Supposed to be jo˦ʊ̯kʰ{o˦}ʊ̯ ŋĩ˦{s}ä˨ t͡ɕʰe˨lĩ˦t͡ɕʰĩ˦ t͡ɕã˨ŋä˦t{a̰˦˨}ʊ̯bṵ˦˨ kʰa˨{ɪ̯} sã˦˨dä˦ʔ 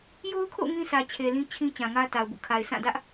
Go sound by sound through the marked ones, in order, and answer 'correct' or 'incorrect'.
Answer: incorrect: o̰˦˨, correct, incorrect: a˨, correct

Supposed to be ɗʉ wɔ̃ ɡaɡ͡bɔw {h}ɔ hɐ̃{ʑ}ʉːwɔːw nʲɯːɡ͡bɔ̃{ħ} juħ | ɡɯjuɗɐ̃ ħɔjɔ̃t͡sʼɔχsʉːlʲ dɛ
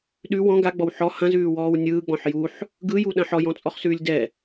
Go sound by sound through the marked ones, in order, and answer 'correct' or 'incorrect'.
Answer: incorrect: ħ, incorrect: z, correct

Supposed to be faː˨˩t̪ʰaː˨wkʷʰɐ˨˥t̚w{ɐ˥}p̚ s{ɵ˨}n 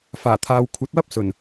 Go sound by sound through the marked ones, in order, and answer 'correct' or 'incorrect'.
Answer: correct, incorrect: ɵ˨˩

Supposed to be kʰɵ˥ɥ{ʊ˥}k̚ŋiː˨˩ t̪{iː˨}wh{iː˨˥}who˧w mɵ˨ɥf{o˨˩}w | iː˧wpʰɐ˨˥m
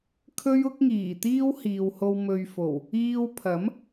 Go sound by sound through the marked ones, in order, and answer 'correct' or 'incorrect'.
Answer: correct, incorrect: iː˥, incorrect: iː˨, correct

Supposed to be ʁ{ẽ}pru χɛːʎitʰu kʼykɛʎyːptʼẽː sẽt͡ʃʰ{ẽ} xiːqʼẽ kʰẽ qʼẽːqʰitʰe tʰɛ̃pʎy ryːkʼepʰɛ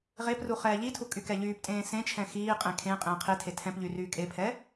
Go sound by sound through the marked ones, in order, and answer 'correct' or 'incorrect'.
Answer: incorrect: e, incorrect: ɛ̃

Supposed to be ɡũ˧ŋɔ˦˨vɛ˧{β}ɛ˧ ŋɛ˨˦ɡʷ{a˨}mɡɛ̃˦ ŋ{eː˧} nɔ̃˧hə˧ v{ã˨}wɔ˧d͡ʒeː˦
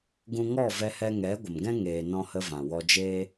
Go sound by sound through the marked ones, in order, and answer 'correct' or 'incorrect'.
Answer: incorrect: h, incorrect: ə˨, correct, correct

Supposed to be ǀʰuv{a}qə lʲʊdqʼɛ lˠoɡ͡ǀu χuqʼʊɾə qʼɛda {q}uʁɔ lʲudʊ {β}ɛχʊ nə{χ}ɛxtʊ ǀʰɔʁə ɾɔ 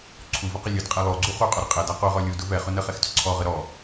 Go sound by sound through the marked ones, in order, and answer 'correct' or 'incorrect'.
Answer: incorrect: ə, correct, incorrect: v, correct

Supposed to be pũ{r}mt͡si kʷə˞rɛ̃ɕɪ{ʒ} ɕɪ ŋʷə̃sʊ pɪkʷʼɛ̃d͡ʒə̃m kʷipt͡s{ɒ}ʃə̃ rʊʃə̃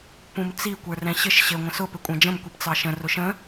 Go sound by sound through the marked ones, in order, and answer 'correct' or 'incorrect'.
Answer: incorrect: none, incorrect: ʃ, incorrect: ɑ

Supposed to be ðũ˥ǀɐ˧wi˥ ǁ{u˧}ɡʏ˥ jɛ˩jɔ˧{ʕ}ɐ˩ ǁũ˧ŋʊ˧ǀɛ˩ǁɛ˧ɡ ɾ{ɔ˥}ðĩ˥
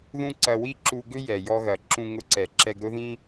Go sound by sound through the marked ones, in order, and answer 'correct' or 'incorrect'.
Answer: correct, incorrect: ɣ, incorrect: ʊ˥

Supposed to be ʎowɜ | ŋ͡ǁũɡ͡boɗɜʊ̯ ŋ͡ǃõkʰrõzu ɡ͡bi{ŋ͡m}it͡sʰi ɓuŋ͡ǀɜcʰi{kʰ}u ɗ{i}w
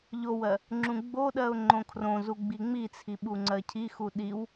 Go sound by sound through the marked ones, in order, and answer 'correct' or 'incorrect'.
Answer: correct, incorrect: x, correct

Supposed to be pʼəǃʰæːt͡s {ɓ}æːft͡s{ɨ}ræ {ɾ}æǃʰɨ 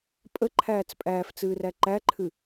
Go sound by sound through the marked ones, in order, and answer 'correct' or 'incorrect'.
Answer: incorrect: pʼ, incorrect: ɨː, incorrect: ǃ

